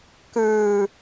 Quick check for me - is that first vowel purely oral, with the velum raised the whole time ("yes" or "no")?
yes